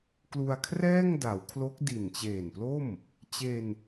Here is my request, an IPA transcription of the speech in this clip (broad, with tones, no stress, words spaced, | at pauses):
klu˧a̯ kʰrɛː˥˩ŋda˩˦wkʰlo˦˥k̚ di˨˩nt͡ɕeː˨˩nplo˥˩m | t͡ɕe˧n